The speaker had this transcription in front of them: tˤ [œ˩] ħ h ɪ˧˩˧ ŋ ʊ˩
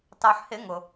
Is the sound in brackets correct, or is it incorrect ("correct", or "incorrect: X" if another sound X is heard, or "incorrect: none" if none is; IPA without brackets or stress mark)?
correct